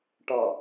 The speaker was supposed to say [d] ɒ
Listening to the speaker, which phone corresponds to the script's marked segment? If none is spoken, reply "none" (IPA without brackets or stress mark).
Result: ʈ